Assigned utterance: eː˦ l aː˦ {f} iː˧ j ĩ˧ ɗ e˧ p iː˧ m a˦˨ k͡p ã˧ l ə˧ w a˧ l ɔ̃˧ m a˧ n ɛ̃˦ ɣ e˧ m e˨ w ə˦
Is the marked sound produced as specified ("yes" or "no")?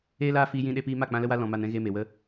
yes